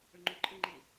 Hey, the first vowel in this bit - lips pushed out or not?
yes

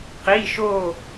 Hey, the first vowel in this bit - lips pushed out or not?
no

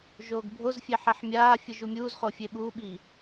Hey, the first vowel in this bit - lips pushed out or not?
yes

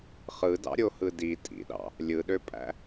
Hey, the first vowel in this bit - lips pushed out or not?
no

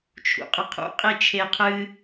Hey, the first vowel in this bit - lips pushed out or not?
yes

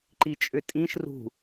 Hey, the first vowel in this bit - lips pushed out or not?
no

